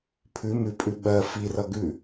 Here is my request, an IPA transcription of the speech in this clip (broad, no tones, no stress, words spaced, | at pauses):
pʰʉ mʉpʼʉ ɓɜ firʌ ɡʉ